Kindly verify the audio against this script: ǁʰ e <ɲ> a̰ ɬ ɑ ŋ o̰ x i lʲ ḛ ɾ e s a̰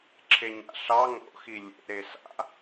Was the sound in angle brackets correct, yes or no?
yes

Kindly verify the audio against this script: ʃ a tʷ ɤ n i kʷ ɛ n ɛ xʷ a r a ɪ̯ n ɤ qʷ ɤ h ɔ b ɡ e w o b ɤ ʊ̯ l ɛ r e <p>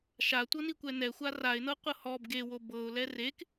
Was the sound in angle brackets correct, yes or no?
no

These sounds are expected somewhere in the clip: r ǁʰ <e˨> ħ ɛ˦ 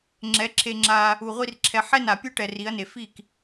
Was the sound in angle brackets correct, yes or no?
no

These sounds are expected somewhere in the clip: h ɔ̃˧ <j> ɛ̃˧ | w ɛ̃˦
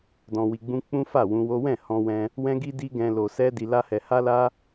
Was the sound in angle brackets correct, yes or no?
no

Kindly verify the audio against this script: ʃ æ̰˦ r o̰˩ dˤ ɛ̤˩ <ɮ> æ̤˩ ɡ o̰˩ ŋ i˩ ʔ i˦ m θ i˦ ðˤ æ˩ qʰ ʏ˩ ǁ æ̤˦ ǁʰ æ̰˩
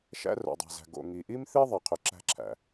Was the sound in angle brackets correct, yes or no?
no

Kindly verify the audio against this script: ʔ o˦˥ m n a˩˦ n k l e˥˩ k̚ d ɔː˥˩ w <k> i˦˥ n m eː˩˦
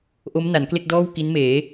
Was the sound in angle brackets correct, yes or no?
yes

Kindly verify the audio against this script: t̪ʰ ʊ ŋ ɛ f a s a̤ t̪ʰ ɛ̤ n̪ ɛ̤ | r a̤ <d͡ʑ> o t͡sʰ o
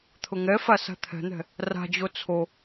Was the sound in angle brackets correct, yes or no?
yes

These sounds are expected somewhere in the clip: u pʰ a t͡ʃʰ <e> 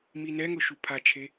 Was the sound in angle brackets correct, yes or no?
yes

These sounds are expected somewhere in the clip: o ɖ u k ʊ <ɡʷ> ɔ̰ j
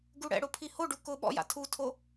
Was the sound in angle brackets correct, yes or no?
no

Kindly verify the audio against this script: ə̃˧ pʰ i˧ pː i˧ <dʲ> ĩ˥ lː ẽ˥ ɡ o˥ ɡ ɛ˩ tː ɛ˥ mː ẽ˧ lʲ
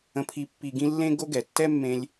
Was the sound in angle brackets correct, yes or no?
no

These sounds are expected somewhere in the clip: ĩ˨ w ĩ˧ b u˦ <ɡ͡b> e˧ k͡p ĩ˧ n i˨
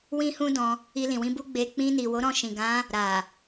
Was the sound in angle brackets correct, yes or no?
yes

